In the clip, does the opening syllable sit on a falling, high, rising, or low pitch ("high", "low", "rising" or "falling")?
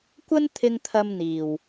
high